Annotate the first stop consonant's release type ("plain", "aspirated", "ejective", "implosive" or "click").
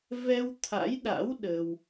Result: aspirated